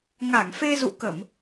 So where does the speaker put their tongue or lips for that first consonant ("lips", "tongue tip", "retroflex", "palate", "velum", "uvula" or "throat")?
velum